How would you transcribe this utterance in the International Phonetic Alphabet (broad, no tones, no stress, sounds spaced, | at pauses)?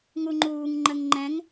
ŋ u ŋ͡ǃ uː ŋ ŋ͡ǃ ə ŋ ŋ͡ǃ ɛ̃ ŋ